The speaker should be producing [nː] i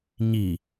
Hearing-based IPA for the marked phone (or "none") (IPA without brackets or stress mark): ɲ